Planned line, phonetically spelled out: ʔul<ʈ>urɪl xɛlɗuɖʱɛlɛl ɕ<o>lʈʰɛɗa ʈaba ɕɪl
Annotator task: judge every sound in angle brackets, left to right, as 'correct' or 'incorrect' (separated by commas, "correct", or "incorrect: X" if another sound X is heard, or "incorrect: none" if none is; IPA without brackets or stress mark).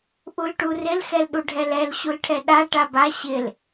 correct, incorrect: u